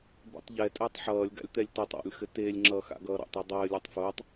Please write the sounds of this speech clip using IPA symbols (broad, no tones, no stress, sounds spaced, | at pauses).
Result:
b ḛ tˤ ʎ ɛ tʼ ɘː tˤ ħ ʌː lʲ ɡ a̰ lʲ t̪ ɛ lʲ t o tˤ ɔ̰ lʲ x ɘ t eː lʲ ŋ͡ǁ ʌː x a̰ ɡ ʌː ɾ ɔ̰ tˤ ɛ dˤ ɘː lʲ o tˤ f ʊː tˤ